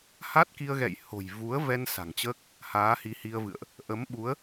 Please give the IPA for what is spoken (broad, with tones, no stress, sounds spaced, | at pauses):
h a˦˥ t̚ k i˧ ə̯ ɣ ɛ̰˧˨ j h o̤˨˩ j v u˨˦ ə̯ v ɛ˧ n s a̤˨˩ ŋ t͡ɕ əː˦˥ k̚ | h aː˨˦ h i˨˦ h i˧ ə̯ v ɨ̰˧˨ ə̯ ʔ | ʔ ə˨˦ m ɓ u˨˦ ə̯